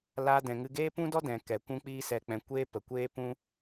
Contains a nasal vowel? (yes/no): yes